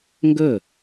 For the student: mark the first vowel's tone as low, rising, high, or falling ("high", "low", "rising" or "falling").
falling